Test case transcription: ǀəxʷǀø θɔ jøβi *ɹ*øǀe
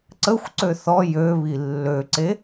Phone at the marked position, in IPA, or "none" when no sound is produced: lː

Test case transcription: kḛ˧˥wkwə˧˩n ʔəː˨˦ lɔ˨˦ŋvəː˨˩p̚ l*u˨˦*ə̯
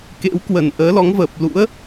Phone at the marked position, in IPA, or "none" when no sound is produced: ṵ˧˥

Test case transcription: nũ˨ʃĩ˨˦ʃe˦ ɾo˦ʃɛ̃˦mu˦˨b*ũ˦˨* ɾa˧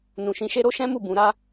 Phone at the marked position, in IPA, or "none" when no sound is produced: ũ˨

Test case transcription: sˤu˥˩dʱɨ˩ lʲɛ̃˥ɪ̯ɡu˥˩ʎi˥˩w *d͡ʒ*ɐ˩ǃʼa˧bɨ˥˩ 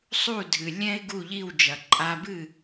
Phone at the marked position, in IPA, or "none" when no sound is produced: d͡ʒ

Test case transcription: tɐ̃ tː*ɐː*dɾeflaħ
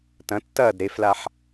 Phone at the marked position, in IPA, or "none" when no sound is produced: ɐː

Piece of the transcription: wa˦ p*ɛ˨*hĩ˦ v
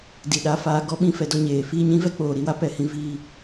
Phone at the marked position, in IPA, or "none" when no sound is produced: ɛ˦˨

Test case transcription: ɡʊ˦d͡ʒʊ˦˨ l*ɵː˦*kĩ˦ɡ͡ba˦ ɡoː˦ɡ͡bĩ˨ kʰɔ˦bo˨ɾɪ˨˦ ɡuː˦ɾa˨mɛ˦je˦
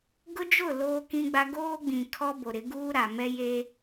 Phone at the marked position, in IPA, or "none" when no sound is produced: oː˦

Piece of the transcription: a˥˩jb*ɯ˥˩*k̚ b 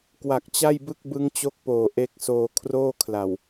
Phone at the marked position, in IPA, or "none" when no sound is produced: ɯ˥˩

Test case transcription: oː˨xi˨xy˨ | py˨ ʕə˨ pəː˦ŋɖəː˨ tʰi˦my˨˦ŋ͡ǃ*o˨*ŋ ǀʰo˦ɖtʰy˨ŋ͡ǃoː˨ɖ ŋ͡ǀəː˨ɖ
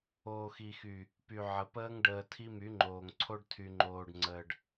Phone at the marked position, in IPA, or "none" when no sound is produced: oː˨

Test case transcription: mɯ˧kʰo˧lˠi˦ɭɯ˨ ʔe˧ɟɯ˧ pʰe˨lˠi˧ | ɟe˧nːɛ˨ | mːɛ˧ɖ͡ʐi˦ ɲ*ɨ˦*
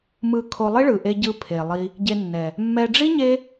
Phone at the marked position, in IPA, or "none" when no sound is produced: e˦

